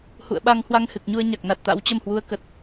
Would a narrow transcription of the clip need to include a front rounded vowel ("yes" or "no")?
no